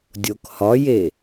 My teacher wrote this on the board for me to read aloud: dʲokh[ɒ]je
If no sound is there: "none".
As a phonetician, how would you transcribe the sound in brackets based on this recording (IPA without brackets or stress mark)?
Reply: ɒ